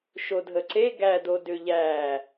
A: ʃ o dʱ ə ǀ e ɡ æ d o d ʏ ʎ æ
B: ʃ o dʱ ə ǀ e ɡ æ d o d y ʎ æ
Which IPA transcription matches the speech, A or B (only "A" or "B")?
A